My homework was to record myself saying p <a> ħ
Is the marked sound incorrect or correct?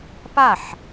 correct